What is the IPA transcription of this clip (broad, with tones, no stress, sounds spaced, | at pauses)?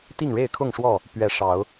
t̪ i˥˨ ŋ ɻ e˥˨ ɪ̯ kʰ ʊ˥˨ ŋ ʂ w ɔ˥˨ | p ɥ ɛ˨˦ ʂ ɑ˨˦ ʊ̯